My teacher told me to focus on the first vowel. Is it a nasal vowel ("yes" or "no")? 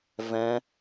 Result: yes